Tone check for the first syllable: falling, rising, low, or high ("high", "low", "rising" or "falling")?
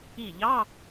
falling